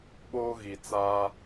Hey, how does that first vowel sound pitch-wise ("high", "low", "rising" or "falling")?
high